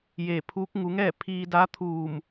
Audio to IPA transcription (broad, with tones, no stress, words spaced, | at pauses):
jeː˧˩pʰuː˧˥k̚ ŋu˩˧ŋɛː˥˨ pʰiː˧da˧˥t̪ʰuː˧˩m